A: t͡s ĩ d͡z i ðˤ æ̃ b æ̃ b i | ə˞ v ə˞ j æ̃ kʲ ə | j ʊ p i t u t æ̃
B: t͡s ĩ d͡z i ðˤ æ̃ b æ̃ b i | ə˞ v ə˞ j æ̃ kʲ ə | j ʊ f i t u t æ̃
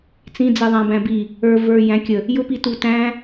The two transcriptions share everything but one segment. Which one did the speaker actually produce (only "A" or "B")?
A